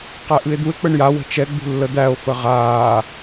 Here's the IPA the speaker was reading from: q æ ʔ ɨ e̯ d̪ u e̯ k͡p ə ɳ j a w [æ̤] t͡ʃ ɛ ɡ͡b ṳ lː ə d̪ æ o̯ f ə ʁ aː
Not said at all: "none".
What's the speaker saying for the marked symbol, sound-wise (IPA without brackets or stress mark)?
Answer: ə̤